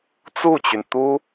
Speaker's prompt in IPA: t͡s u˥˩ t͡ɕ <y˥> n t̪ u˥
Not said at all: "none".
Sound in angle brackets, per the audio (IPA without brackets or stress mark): y˩